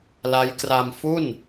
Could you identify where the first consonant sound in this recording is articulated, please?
alveolar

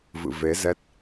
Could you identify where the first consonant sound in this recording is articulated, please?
labial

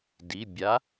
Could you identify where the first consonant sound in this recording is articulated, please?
alveolar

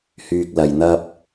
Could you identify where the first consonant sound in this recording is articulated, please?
glottal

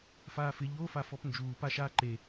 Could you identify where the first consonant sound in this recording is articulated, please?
labial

